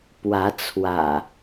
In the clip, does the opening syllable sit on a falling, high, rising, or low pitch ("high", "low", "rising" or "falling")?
rising